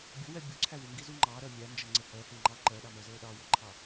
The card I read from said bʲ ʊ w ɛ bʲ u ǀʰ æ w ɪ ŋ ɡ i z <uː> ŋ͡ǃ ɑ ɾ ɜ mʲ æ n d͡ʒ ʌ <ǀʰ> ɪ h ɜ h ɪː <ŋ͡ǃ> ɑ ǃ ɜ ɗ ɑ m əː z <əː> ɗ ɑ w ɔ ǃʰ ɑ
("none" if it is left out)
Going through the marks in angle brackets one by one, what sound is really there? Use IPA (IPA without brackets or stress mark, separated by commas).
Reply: u, ŋ͡ǀ, ŋ͡ǃ, əː